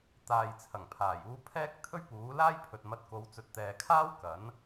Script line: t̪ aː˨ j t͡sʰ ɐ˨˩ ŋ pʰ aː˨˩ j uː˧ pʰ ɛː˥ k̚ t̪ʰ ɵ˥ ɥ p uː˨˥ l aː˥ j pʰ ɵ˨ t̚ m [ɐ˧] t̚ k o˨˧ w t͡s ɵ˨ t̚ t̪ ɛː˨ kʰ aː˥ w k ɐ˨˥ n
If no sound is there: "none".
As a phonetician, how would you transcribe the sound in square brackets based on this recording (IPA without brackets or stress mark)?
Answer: ɐ˧